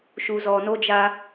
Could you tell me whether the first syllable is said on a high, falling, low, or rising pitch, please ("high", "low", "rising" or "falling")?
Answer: low